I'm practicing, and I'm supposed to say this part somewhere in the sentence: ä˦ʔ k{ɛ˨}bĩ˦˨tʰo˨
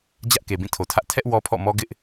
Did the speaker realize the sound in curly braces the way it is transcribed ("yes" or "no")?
no